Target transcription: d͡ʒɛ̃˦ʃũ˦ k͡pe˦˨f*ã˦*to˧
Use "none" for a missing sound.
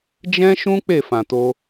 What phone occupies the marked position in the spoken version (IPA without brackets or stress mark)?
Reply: ã˨